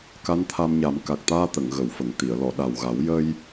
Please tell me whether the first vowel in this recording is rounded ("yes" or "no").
no